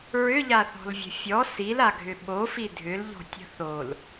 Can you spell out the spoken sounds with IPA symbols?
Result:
ɹ ʏ ʎ a θ ɔ̤ l vʲ ə̤ fʲ ɔ s i l a ɡʱ ʏ ɓ o f i dʱ ʏ l ʎ ɔ̤ tʲ ə̤ θ o l

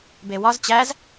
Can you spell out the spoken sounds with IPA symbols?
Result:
b e w ɒ z t͡ɕ æ z

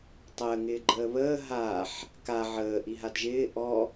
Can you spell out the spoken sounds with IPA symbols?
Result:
tˤ əː ŋ ɪː ɡ͡ǃ əː β əː ɦ aː ħ | k a ʕ əː ʔ i ɦ a d ʒ ɪː ʔ ɔ

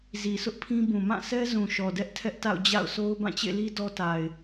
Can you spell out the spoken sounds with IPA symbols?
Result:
z i˨ sʰ ʊ˦ ʔ pʰ ĩ˦ b ũ˨ m ã˦˨ s ɛ˦ z ũ˨ ʃ ɔ˨ d ɛ˦ ʔ tʰ ɛ˦ ʔ t a̰˦˨ ʊ̯ d͡ʑ a̰˦˨ ʊ̯ s o˦ ʊ̯ b ã˦˨ t͡ɕ ḛ˦˨ l i˦ d ɔ˦ t a˨ ɪ̯

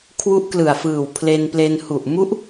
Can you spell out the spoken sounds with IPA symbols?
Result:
kʰ w u˦˥ ʔ k l ɯ˨˩ a̯ f ɯː˨˩ w pʰ l e˧ n p l e˧ n h u˨˩ ʔ m u˦˥ ʔ

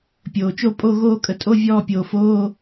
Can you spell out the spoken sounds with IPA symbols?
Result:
pʲ oː˩ t͡ʃ o˦˨ pʼ o˦˨ ɣ oː˦˨ kʼ ə˩ tʼ o˧˥˧ vʲ ɔː˦˨ pʲ oː˩ f oː˧˥˧

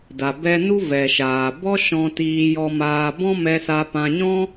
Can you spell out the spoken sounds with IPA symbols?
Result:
d a˨ b ɛ˧ n u˦ v ɛ˨ ʃ aː˨ b ɔ˦ ʃ ɔ̃˧ t iː˧ j ɔ˧ m aː˧ b ɔ̃˦ m ɛ˧ s a˧ p ã˧ ɲ ɔ̃˦

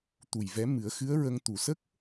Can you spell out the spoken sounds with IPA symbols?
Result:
t̪ u˨˩ j v ɛ˧˥ m ɨ˨˩˦ ə̯ x ɨ˧˥ ə̯ ɹ ə˧ ŋ t̪ u˨˩˨ s ə˦˥ k̚

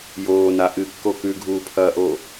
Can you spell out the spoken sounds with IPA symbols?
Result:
j oː n a ʔ ɨ kː o k ʉ ɡʱ uː pʰ ɐː ʔ oː

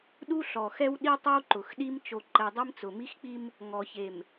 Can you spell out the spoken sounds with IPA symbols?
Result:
ɗ u˦ ɬ ɔ˨ x ɛ˦ w ɗ i˦ tˤ o˦ w ǃ ʊ˨ x ɗ i˦ m t͡ʃ o˨ ǃ ɛ˨ dˤ i˦ m t͡s ʊ˨ m i˦ x k͡p i˦ m | ŋ ɔ˨ ç e˨ m

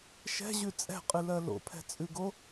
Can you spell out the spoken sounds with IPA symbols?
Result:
ʃ ɛ̤ ʑ ʉ t͡sʼ ɛ̤ qʼ ɨ l ɜ l o̰ pʰ ɛ̤ t͡sʼ ʉ ɡ o

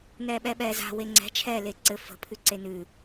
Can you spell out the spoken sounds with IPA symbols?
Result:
n ɛː ɓ ɛ ɓ ɛː z a̤ w e ŋ͡ǀ ɛ̤ t͡ʃʰ ɛː l e ǀ ɘ f ə̤ pʰ ʉ ǀ e n ʉ

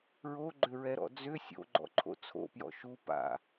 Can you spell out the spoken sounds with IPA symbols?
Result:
ɹ o ɡ͡ǃ ʏ ɹ ɛ ɾ ɔ̰ d͡z ʏ sʲ o̰ ɡ͡ǃ ɔ̰ ǃʰ o̰ t͡sʰ o̰ p j ɔ̰ ʃ u p a̰

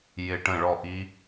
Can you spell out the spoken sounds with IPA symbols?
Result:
j ɪ˦˨ ʈ ə̃˦˨ ɭ ɔ˦˨ ʔ i˦˥

